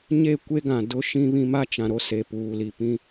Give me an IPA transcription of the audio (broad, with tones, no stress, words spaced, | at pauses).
ɲe˦˨kʷe˦ɡã˨ dʊ˦ ʃĩ˦βĩ˦ ma˦t͡ʃã˨ɾo˦se˨ puː˨li˨ pĩ˦